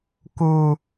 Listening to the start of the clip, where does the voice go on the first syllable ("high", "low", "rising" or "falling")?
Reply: high